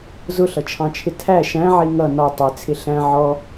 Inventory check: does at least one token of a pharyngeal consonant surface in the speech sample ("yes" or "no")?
yes